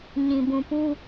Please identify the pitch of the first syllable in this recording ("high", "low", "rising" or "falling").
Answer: low